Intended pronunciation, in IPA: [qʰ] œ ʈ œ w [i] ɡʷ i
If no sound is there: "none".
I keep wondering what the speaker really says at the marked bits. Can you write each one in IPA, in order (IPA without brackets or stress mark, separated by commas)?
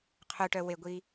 qʰ, e